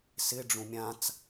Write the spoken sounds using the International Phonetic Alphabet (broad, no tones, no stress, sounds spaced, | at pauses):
s ɪ ɖ͡ʐ ũ mʲ ã t͡s